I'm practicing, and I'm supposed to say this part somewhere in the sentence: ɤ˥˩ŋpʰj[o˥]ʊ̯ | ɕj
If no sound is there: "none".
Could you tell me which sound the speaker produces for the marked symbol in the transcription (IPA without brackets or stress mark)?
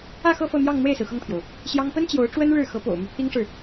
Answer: o˩